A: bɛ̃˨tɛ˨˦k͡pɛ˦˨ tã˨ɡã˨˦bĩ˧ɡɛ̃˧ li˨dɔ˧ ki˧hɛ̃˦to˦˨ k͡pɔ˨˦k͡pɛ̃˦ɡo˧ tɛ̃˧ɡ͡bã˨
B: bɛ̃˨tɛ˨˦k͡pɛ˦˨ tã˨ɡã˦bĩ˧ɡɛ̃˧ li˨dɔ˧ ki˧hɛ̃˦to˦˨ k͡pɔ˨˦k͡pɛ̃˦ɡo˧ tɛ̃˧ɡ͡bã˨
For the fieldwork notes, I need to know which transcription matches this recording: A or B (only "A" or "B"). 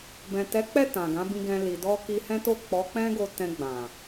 A